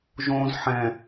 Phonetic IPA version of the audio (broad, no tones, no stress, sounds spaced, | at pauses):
ʒ õ z ħ ɛ̃